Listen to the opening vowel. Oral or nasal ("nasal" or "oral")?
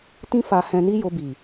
nasal